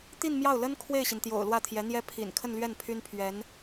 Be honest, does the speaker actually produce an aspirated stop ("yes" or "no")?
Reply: yes